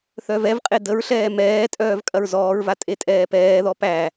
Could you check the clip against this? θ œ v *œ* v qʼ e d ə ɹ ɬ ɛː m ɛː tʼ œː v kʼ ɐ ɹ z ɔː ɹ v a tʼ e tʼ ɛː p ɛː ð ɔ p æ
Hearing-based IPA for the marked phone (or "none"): ɛ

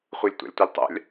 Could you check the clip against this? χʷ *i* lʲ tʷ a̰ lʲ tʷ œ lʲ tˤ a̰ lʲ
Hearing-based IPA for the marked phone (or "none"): e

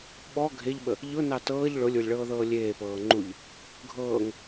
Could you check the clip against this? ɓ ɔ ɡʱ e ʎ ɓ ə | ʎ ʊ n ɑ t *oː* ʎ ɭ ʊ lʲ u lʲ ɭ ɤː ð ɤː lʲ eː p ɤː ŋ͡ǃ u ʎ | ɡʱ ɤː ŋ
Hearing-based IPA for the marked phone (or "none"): ɤː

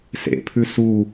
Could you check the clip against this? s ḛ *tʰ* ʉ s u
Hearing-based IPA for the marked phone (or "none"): pʰ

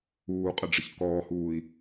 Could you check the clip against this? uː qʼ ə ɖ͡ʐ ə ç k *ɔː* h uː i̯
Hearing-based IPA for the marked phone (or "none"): ɔː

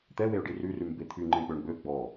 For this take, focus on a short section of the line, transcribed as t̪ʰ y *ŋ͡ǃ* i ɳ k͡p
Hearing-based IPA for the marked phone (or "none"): ŋ͡ǃ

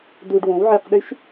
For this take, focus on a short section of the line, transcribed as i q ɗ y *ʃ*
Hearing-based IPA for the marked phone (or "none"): ʃ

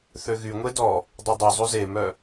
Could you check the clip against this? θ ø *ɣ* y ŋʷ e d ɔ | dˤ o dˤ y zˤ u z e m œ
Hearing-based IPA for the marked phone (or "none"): ɣ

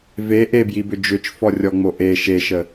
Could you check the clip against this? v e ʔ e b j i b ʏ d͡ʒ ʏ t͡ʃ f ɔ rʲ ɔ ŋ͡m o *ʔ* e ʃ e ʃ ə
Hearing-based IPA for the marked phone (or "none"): ʔ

